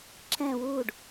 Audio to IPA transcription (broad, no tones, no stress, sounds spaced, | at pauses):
ǁ ɛ̃ w u ɖ